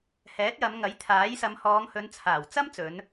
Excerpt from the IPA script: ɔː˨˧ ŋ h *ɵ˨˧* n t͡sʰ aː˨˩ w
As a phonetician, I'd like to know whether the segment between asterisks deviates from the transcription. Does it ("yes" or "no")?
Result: no